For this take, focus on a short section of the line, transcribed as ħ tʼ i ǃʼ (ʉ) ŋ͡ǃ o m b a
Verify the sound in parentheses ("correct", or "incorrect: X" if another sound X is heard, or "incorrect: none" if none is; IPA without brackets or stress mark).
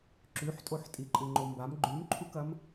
incorrect: ɨ